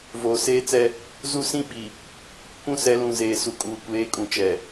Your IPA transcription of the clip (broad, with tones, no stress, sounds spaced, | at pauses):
v oː˨ s eː˦ t͡s ɛ˦ | z u˦ s ĩ˦ ɓ i˨ | kʷ ũ˦ s ɛ˨˦ l ũ˨ z eː˨ s u˨ kʼ uː˨ kʷ eː˨˦ kʼ ũ˨ t͡ʃ ɛ˨